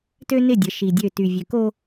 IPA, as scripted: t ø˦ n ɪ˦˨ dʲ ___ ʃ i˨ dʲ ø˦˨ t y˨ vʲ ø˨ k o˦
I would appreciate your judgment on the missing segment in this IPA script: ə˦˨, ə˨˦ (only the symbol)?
ə˨˦